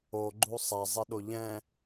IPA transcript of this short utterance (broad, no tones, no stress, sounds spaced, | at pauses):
o ɡ͡ǃ u sˤ a zˤ ɛ ɗ o ʎ ɛ̃